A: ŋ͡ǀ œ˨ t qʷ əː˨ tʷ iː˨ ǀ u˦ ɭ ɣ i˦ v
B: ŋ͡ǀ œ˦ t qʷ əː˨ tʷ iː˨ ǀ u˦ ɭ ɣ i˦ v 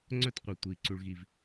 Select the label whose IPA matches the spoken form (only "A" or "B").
B